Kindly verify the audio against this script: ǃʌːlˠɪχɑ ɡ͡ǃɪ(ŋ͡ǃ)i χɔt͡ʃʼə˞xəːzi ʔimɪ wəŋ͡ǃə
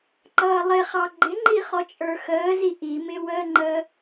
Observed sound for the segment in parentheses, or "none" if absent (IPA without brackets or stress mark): ŋ͡ǃ